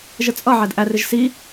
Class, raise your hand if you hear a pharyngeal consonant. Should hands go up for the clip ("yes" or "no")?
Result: yes